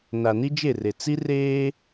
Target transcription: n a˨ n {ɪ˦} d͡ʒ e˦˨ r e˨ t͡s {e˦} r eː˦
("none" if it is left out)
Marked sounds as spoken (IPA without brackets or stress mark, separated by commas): i˦, i˦